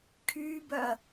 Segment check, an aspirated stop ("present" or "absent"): present